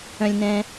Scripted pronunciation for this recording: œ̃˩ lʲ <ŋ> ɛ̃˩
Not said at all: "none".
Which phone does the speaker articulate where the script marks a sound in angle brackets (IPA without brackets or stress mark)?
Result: n